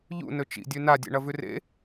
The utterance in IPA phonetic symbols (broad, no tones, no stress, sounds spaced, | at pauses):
ʎ ṵ n ɵ t͡ʃ ḭ dʲ ʉ n a dʲ ḛ ɳ ɐ v ʉ r ḛ